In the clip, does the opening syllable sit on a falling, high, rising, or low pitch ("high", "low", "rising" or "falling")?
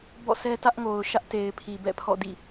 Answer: falling